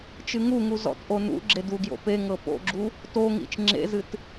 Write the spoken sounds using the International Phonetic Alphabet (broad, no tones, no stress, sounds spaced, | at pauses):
t͡ʃ ɨ ŋ u ŋ u z ɔ̰ t ʔ o n ṵ ɡ͡ǁ e d u ɡ j o̰ p e ŋ ɤ p o̰ ɡ͡ǁ u | t o ŋ ḭ t͡ʃ ŋ͡ǁ ḛ z ɨ t